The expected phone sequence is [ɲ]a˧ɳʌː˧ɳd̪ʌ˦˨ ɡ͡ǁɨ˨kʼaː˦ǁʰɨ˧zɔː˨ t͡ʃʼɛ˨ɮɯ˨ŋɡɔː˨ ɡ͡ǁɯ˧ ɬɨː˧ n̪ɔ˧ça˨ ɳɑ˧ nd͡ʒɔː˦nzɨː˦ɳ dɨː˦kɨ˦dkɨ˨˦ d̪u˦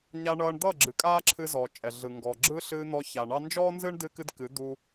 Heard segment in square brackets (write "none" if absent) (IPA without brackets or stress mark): ɲ